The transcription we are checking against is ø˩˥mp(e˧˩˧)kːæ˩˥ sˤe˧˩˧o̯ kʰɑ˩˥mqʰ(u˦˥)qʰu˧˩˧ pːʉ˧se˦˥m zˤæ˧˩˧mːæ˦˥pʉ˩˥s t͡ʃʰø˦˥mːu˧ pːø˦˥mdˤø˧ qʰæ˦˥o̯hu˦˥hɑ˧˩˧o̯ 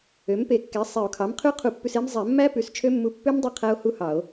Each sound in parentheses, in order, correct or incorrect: correct, incorrect

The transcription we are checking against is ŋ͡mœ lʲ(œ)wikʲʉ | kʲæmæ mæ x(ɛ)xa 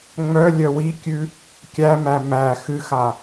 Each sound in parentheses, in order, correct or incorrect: correct, incorrect

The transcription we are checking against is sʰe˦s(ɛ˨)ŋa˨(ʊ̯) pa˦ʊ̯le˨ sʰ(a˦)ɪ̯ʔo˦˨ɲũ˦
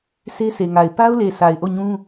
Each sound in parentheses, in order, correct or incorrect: incorrect, incorrect, incorrect

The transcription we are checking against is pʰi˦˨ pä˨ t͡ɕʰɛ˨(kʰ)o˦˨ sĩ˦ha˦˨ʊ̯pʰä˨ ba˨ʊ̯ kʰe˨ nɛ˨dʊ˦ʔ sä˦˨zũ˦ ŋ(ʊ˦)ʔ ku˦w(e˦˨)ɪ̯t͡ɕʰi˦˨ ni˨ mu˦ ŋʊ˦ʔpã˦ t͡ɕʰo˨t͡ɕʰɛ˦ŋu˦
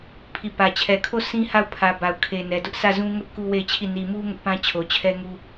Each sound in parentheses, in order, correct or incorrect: correct, correct, correct

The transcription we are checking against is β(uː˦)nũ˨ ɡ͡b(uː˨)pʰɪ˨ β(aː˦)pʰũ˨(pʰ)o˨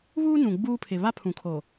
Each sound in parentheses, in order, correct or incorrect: correct, incorrect, incorrect, incorrect

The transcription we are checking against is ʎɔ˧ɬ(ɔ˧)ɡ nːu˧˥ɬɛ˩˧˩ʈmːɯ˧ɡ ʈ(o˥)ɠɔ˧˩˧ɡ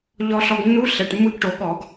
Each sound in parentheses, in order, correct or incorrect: correct, incorrect

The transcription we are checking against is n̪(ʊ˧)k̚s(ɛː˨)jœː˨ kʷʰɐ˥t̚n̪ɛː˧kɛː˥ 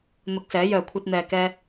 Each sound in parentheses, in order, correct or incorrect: correct, incorrect

